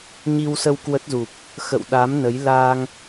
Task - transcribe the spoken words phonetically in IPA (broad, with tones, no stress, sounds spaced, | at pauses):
ɲ i˧ w s ə˧ w k w ə˦˥ t̚ z u˨˩ p̚ | x ə̰˧˨ w ɗ a˨˦ m n ə˨˦ j l a˧ ŋ